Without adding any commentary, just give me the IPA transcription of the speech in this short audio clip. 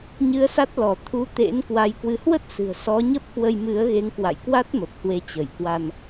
ɲ ɨ˨˦ ə̯ s a˦˥ t̚ l ɔ˧˩ t̪ʰ u˨˦ t̪ ḛ˧˥ n k w a˨˦ j k w ɨ˨˦ h w ə˦˥ t̚ s ɨ̤˨˩ ə̯ s ɔ˨˦ ɲ ə˦˥ p̚ k w ə˧ j m ɨ˨˦ ə̯ ɣ e˨˦ ŋ k w a̰˧˨ j k w a˦˥ t̚ m ə˨˩ p̚ h w e˨˦ t͡ɕ ə˧˩ j k w a˧ n

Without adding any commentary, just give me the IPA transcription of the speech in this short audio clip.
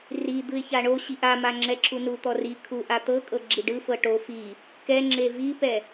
r i d̪ ɯ ɪ̯ ç a ɳ o ɕ i ʔ a m a ŋ͡ǁ ɛ ǁʰ u n u t̪ ɔ r i kʰ u ʔ a t̪ ɤ kʼ ɤ ɡ͡ǁ i ɖ ɯ f ɤ ʈ o f i | k ɛ ŋ͡ǁ e v i p ɛ

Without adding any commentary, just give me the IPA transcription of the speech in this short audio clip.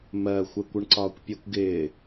m ɜ xʷ ɛ kʷ ə ɳ ǀ ɒː kʷ pʲ ɛ kʷ ɡ ɪː

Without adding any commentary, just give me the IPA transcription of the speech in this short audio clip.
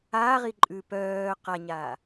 aː ʁ i ǃʼ ʉ p œː q a ɲ aː

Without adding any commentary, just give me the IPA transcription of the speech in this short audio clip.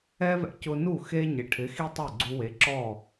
ɛ˥ v ɛ̰˧ c ʊ˧ n u˥˩ x e˥ ɲ ɪ˩ ʈʰ ɪ˩˥ x i˥ tˤ ɛ˥˩ ɡ͡ǀ u˧ w e˩˥ ǁ ɔ˥˩

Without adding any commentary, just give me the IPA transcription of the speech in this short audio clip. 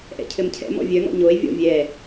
ʔ ɛ̰ cʰ ɘ m cʰ ɛ̰ m ɔ̰ vʲ œ ŋ ɔ̰ ɲ o e̯ vʲ ɔ̰ vʲ ɛ

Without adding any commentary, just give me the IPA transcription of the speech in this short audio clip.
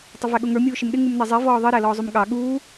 tˤ ə v æ ɠ ʊ ŋ ə˞ mʲ uː ʃ ɪ m ɗ ɪ ŋ u m n ɛ zˤ i v ɔː ðˤ i ɾ æ l ɔː zˤ u m ɠ ɑ ɠ uː

